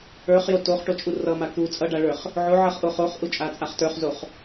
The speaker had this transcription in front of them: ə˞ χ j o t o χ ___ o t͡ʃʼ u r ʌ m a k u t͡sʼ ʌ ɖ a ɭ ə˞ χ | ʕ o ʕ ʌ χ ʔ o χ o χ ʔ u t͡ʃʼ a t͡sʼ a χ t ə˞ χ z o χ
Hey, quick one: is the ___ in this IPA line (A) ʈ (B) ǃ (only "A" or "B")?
A